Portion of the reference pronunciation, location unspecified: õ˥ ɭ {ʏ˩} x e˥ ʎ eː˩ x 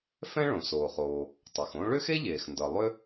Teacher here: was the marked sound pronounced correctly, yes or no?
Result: no